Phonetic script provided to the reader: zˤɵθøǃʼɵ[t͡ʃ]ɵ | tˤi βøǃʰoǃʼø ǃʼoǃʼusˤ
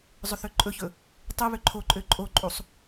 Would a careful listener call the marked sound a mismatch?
yes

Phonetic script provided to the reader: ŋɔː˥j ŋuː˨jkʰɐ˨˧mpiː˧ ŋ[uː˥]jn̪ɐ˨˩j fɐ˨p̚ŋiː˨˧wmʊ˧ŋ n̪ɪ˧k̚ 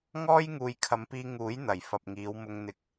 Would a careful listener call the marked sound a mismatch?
yes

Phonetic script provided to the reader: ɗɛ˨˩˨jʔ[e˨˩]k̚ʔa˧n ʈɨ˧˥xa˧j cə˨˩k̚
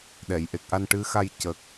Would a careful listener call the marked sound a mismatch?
no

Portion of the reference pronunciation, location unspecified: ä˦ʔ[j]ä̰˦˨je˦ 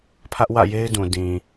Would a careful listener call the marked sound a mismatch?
yes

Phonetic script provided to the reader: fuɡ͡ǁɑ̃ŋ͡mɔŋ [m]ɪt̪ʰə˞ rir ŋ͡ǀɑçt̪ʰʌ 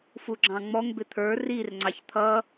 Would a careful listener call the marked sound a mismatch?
yes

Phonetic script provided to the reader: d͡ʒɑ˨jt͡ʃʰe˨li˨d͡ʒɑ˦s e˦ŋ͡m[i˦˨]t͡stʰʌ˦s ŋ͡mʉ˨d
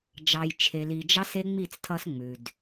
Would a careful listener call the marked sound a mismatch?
no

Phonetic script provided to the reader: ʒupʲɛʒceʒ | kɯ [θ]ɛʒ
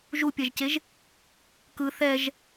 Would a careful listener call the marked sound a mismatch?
no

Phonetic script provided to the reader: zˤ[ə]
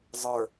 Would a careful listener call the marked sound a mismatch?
yes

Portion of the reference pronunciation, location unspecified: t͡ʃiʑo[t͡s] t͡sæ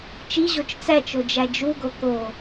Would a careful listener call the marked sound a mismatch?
yes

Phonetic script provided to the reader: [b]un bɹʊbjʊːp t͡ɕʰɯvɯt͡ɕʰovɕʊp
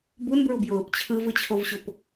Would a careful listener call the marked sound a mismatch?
no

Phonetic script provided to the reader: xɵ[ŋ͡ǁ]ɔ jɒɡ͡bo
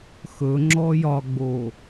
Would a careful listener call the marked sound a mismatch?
no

